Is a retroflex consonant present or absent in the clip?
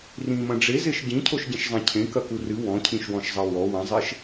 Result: present